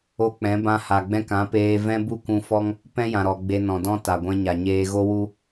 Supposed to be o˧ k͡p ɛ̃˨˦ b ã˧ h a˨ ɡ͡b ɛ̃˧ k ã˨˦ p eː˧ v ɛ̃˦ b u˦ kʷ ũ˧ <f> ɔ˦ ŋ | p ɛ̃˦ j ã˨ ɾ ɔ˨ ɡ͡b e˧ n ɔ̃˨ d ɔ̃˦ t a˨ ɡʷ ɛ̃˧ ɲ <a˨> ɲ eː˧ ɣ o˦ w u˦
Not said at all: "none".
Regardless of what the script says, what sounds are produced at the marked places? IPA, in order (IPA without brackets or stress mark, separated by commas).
f, a˨